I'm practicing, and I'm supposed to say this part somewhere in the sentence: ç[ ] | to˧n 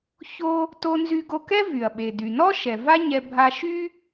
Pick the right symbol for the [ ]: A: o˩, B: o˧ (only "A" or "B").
B